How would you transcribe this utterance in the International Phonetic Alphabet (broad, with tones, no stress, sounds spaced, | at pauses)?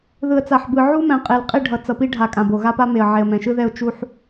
ð ɯ˨ ə̯ t͡s a˨ ħ b ɯ˨ ʕ u˦ m ɛ̃˨ qʼ e˨ l qʼ i˦˨ ɖʱ ʌ˨ t͡s ʌ˨ p i˦ ɖʱ a˨ kʼ ã˨ b o˨ ɣ a˦ p a˦ m e˨ ə̯ ʕ e˨ ə̯ m ɛ̃˨ ʃ ɯ˦ ð ɛ˦˨ ʊ̯ t͡ʃ u˦ ħ